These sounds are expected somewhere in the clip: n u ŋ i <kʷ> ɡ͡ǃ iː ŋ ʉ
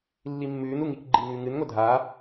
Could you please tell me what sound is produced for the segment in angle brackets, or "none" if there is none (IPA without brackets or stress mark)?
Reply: k